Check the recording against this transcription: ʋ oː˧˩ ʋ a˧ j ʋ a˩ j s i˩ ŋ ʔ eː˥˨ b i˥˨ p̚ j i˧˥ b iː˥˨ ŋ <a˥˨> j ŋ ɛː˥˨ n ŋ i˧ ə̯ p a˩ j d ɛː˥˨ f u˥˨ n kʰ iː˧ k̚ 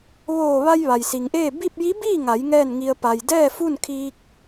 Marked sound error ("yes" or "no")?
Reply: yes